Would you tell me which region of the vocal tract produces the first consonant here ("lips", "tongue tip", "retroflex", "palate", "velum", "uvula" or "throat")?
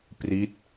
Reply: lips